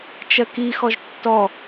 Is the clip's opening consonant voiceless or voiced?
voiceless